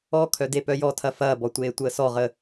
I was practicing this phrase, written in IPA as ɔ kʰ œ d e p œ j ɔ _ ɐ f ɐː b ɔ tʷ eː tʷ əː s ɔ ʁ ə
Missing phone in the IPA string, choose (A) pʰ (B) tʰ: B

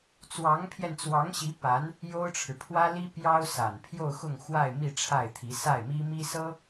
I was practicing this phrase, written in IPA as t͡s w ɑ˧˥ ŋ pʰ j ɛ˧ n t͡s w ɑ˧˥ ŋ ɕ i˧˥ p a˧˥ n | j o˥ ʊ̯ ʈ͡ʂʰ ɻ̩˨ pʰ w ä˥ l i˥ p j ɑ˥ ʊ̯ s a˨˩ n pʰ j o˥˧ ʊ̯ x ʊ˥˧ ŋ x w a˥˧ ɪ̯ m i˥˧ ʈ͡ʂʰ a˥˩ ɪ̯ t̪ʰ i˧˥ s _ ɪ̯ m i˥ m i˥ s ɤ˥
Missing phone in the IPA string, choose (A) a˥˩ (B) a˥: A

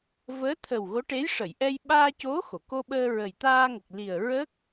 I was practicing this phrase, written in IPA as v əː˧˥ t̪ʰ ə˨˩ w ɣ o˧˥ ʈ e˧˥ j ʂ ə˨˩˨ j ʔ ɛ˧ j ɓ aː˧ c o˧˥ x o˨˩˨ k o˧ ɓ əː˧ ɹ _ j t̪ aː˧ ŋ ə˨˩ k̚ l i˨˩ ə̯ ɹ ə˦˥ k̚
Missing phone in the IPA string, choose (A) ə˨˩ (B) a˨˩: A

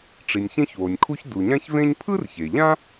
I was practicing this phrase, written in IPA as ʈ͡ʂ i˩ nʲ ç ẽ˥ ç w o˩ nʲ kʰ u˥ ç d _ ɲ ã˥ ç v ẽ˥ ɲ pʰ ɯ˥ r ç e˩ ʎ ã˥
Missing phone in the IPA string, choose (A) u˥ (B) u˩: B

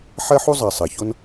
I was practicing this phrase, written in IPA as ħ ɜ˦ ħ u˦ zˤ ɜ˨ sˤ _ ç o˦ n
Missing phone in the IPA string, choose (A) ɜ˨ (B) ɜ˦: A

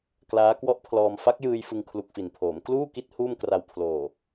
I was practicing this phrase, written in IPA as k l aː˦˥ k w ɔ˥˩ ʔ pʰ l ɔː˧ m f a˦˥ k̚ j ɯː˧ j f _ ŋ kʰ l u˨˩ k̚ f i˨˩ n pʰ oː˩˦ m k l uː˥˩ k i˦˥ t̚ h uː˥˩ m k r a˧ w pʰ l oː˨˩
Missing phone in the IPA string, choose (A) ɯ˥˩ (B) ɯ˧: B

